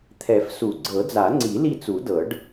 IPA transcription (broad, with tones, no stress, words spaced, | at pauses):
t̪ʰɛ˨˩˦f su˨˩˦ɡ͡ǀɤ˨˩˦ d͡za˨˩˦ŋ͡ǀi˨˩˦ li˦˨t͡su˨˩˦dɤ˨˩˦ɖ